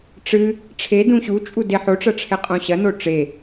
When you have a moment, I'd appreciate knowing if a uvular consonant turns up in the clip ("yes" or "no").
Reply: yes